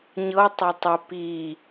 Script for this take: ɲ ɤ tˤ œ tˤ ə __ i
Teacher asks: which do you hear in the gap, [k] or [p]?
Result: p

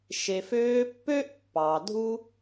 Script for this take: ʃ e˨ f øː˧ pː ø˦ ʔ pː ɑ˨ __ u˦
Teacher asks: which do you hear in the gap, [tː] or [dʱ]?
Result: dʱ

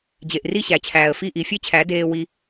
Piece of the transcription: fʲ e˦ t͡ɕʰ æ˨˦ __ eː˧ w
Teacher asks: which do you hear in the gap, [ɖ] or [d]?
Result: d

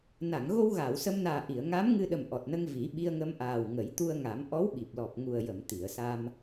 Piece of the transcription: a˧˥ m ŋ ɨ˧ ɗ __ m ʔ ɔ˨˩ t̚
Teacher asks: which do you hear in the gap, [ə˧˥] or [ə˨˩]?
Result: ə˨˩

